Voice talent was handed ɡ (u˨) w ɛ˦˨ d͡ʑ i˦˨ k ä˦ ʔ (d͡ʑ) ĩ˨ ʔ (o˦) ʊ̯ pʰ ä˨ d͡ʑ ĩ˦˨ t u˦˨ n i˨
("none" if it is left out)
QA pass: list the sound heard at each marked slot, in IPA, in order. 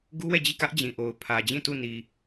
u˦, d͡ʑ, o˨

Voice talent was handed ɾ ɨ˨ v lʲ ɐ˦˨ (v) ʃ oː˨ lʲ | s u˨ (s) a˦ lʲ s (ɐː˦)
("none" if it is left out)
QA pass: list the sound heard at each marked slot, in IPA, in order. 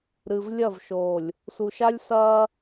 v, ʃ, ɐː˦

